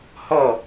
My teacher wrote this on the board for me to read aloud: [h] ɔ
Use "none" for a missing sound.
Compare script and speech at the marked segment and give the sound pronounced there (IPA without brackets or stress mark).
h